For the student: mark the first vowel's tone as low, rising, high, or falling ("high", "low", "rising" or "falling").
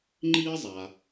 high